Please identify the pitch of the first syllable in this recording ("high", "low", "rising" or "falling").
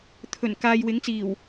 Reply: low